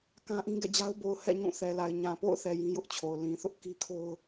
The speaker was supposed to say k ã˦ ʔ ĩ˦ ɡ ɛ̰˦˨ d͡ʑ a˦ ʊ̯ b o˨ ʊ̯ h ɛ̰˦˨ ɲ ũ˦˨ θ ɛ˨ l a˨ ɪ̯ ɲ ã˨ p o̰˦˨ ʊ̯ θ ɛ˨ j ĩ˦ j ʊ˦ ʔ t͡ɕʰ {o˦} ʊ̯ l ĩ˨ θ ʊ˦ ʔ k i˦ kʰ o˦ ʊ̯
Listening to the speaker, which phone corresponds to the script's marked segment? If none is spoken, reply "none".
o˨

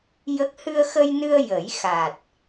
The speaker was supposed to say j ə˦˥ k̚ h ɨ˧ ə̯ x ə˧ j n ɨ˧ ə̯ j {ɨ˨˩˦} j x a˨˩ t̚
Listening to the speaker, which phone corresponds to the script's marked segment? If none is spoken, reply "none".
ə˨˩˦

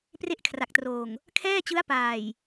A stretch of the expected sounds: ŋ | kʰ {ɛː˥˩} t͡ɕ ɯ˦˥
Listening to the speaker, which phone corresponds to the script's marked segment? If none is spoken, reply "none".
ɛː˥˩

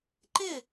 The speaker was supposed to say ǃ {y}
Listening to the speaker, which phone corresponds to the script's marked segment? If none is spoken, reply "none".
ɪ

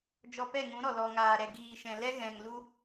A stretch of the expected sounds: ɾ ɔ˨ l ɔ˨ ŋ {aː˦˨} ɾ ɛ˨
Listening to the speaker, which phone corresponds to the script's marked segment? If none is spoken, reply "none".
aː˨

